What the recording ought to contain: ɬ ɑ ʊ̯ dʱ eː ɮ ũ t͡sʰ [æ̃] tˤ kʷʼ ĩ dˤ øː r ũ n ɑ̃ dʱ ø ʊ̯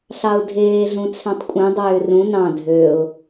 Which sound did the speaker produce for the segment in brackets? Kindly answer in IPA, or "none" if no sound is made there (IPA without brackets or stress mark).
æ̃